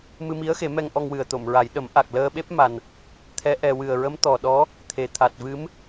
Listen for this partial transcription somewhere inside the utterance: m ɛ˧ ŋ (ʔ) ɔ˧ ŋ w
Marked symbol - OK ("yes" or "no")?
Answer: yes